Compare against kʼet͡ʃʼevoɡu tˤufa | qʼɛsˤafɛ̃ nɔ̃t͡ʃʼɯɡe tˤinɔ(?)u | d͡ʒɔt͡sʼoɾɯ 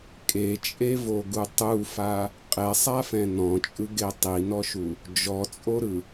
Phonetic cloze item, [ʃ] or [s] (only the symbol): ʃ